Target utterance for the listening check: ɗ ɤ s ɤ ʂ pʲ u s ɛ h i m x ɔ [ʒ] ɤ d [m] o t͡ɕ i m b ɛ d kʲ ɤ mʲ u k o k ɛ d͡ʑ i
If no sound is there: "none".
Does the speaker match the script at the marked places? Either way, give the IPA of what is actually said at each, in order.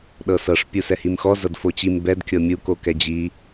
z, f

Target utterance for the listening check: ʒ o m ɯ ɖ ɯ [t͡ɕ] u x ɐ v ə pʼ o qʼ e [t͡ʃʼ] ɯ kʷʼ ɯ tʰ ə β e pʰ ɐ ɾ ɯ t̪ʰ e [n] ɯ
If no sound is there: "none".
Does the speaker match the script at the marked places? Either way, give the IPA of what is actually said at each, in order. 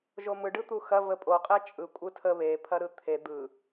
t̪, t͡ʃʼ, d̪

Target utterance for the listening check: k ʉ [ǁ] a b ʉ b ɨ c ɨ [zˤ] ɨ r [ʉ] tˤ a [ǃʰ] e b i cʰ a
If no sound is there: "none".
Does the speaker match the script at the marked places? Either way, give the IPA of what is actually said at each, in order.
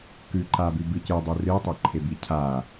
ǃ, dˤ, ɨ, ǃʰ

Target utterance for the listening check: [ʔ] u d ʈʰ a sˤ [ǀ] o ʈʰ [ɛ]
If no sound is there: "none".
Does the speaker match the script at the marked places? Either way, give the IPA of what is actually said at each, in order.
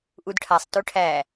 ʔ, t, æ

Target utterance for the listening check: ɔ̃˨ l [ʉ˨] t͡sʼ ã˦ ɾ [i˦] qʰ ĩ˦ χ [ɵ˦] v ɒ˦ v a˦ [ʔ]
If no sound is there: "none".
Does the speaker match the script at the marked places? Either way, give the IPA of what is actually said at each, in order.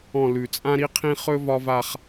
ʉ˨, i˦, ɵ˦, χ

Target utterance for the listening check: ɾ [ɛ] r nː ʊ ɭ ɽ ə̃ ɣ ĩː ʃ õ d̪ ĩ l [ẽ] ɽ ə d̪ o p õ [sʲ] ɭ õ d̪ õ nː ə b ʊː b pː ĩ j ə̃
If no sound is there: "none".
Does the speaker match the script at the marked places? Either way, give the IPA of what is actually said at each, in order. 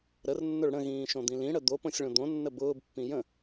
ə, ĩ, sʲ

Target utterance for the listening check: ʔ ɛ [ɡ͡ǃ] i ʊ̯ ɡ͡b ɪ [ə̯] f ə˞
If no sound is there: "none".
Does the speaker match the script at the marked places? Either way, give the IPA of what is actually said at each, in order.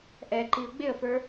ǃ, ə̯

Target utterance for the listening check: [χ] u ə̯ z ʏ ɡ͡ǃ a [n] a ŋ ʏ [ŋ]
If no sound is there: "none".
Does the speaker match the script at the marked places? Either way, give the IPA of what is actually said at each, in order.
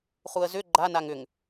χ, n, ŋ

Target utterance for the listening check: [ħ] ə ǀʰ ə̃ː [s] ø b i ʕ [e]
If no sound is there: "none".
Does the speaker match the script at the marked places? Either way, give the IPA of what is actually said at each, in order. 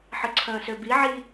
ħ, s, i

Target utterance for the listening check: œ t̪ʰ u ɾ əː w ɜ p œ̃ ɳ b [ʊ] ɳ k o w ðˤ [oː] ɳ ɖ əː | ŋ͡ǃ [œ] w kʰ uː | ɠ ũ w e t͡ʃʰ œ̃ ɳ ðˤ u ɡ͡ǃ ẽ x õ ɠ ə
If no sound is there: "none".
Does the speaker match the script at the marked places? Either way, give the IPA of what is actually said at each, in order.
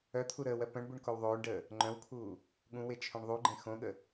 u, oː, œ̃

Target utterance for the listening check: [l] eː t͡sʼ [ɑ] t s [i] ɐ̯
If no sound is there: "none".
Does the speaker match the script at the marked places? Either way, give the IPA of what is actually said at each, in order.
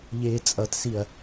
ʎ, ʌ, i

